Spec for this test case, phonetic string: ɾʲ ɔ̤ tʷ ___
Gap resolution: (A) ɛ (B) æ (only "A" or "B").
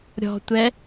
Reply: A